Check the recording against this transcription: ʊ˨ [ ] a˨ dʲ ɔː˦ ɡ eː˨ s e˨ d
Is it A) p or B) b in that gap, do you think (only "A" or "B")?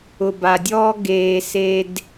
B